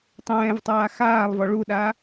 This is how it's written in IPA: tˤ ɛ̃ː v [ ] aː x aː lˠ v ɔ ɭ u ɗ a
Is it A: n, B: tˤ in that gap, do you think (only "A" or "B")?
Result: B